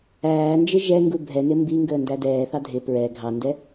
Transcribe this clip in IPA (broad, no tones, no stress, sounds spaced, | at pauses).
æː n d͡ʒ ɪ ʒ ɛ ŋ ɡ u bʱ ɛ n ɪ m b i ŋ ɡ əː n d æ d ɛː θ ɑ dʱ ɪ p ɹ ɛ ɡʱ ɑ n d ɛ